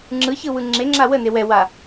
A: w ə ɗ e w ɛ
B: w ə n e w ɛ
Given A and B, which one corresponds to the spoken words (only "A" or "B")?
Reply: B